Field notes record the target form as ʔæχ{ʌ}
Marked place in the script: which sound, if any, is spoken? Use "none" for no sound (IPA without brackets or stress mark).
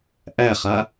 a